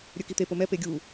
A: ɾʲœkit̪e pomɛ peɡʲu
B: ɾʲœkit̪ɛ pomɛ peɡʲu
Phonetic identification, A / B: A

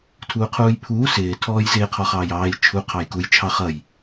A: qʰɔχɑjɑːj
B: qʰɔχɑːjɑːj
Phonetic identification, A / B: B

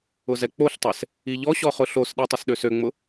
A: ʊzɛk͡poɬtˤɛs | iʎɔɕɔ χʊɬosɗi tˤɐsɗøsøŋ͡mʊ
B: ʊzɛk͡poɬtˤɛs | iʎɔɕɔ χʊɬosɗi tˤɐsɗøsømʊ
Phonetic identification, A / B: A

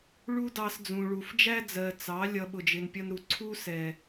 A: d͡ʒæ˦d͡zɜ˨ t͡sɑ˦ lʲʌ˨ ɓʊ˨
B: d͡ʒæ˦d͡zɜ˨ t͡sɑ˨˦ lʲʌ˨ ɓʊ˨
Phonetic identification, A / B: B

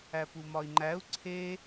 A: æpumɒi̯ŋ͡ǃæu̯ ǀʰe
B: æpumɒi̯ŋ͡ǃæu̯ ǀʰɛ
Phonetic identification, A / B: A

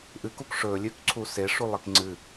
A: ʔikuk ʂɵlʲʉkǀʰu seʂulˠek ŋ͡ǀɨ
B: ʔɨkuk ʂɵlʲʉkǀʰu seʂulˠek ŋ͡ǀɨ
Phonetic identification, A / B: B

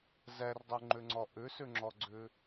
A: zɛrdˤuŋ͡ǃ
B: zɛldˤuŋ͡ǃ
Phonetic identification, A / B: A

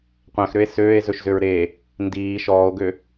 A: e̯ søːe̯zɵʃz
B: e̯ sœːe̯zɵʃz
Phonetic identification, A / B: A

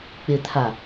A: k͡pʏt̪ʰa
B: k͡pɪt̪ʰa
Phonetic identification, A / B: B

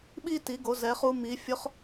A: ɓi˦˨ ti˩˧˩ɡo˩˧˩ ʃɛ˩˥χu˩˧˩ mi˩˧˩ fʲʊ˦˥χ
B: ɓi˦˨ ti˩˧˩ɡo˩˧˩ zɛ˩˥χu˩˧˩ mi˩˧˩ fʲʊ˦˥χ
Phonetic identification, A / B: B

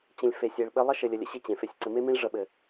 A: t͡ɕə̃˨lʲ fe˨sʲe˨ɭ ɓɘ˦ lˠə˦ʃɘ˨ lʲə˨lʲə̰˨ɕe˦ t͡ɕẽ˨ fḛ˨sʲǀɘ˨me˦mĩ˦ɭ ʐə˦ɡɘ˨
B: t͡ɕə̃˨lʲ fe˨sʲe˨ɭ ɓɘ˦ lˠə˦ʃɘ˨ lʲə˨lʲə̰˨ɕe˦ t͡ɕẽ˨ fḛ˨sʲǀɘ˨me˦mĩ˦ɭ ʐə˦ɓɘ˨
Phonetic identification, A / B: B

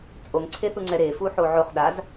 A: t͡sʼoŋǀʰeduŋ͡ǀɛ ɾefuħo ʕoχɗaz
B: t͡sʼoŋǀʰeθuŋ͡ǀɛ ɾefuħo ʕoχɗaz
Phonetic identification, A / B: B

